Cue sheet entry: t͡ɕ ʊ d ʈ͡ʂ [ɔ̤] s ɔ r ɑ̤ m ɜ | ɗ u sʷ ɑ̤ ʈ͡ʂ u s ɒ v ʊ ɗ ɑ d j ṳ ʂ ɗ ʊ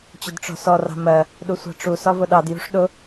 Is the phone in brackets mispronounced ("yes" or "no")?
no